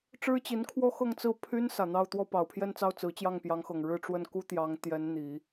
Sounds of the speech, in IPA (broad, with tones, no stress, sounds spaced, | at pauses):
ʈ͡ʂ ɻ̩˥ t͡ɕ i˧˥ n kʰ w ɔ˥ x ɤ˥˧ ŋ t͡s ɹ̩˥˩ pʰ y˥ n s ä˨˩ n̪ ɑ˥˧ ʊ̯ t̪ w ɔ˥˩ p ɑ˨˩ ʊ̯ pʰ j ɛ˥˧ n t͡s ɑ˥˩ ʊ̯ t͡s ɹ̩˧˥ t͡ɕ j ɑ˥˩ ŋ p j ɑ˧˥ ŋ x ɤ˨˩ ŋ ɻ ɻ̩˥˧ ʈ͡ʂ w ə˥˩ n k u˥ t̪ j ɑ˧˥ ŋ t̪ j ɛ˧˥ n n̪ i˨˩˦